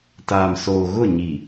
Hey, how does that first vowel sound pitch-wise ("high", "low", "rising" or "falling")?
low